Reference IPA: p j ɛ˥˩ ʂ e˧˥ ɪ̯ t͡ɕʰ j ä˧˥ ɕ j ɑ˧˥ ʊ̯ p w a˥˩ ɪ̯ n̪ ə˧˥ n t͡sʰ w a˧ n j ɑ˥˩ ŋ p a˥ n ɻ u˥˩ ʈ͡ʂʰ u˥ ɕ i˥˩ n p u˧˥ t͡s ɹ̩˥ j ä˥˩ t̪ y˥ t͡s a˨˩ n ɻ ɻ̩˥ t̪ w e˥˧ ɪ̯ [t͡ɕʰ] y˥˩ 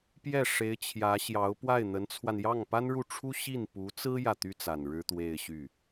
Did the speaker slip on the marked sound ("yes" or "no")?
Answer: yes